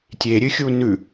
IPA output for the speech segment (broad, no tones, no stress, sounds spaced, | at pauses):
tʲ e ɾʲ ɨ xʲ u n ʉ